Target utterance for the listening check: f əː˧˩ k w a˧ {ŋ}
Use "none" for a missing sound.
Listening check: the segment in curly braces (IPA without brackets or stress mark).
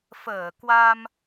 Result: m